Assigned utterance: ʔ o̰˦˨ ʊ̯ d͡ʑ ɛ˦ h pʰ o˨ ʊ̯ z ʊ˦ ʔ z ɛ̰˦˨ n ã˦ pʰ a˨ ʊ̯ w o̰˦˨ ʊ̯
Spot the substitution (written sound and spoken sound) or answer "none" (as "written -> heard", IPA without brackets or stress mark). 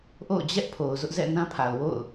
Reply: h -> ʔ